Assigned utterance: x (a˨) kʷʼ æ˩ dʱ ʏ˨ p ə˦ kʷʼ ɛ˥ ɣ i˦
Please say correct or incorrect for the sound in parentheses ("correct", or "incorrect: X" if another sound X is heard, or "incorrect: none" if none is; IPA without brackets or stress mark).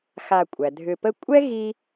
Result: correct